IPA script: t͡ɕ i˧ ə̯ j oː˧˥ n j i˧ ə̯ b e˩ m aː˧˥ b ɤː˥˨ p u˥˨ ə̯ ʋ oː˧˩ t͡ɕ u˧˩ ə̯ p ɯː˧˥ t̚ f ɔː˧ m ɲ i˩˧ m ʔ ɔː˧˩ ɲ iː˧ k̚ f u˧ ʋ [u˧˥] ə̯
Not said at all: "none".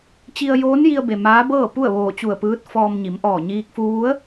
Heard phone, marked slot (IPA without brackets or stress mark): u˧˥